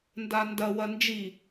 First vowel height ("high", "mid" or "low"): low